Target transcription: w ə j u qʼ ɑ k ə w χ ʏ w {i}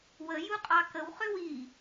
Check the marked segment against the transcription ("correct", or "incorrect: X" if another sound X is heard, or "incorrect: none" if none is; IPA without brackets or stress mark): correct